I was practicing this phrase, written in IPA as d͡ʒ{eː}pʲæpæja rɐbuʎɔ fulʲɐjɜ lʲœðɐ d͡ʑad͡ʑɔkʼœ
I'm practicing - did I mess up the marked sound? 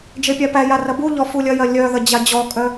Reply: yes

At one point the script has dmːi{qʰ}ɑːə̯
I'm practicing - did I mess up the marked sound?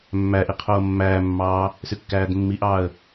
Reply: yes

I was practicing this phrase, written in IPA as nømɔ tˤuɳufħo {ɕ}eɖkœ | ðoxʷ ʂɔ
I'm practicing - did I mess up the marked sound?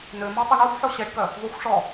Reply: no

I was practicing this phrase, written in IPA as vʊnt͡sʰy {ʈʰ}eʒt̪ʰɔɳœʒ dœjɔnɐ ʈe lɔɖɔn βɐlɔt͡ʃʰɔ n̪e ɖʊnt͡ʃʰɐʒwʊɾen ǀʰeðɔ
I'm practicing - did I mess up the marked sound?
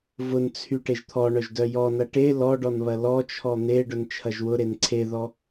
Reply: yes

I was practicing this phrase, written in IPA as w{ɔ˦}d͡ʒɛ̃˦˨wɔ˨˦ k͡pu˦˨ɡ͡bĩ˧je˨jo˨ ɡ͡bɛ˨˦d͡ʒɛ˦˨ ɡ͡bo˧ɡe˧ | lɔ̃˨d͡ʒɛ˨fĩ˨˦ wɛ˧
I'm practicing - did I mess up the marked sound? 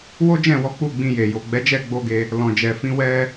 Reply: yes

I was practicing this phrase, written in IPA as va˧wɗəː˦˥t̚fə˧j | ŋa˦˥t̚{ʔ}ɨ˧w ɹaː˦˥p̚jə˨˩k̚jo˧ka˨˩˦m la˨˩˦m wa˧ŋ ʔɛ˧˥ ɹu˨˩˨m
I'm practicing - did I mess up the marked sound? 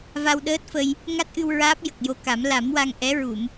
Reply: no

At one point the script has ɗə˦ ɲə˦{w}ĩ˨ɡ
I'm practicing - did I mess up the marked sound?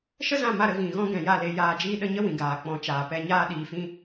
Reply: no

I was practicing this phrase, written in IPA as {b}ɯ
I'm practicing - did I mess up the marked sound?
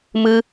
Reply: yes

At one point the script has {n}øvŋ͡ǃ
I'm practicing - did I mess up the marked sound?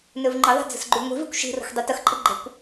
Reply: no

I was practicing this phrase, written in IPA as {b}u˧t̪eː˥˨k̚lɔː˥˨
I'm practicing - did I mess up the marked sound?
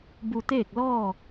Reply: no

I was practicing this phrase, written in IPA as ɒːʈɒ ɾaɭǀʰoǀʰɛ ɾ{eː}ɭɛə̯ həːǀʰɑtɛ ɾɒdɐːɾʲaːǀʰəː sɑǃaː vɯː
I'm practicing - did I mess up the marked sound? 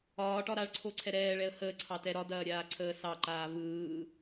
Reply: yes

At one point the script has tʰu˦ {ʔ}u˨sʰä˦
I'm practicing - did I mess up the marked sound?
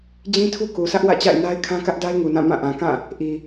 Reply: yes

